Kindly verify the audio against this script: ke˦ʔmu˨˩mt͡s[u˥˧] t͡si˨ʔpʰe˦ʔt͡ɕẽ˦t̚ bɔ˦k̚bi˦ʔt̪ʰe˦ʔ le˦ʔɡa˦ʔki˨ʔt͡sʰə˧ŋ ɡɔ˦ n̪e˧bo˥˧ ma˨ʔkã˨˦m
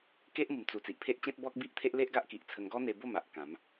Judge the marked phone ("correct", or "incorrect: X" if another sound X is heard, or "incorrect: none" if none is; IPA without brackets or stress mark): incorrect: u˨˩